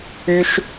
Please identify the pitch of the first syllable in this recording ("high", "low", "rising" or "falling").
high